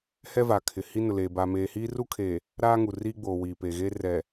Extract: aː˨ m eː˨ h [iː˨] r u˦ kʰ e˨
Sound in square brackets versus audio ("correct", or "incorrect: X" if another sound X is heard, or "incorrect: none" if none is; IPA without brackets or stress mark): incorrect: iː˦